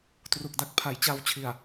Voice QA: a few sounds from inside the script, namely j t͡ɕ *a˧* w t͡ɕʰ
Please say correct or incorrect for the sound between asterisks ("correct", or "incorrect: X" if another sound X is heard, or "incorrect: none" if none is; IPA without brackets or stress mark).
correct